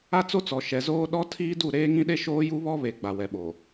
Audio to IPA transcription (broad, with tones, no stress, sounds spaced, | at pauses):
a˦ t͡s o˦ t͡s ɔ˨ ʃ ɛ˨ z oː˦ ɗ ɔ˦ tʰ iː˦ d u˦˨ ɾ eː˦ ŋ ĩ˦ ɗ e˦ ʃ oː˦ j u˦ β ɔ˦ β e˨ ɡ͡b a˨ w ɛ˨ ɓ o˨